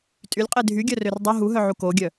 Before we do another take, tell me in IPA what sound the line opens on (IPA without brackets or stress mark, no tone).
tʼ